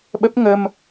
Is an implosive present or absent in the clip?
present